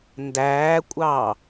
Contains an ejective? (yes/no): yes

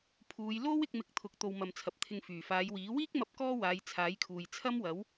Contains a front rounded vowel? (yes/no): yes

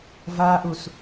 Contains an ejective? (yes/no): no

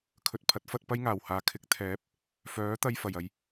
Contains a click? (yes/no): no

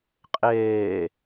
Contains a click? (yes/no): no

